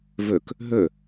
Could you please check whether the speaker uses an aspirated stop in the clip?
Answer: no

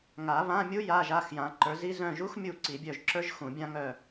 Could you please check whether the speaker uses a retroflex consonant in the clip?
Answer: no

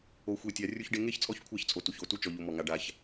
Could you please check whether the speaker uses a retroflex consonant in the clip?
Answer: yes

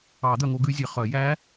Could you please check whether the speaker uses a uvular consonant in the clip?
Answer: yes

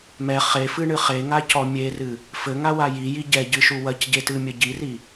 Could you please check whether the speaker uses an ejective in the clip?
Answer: no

